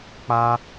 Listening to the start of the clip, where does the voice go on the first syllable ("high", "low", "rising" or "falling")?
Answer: high